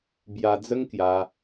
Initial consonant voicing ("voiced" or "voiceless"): voiced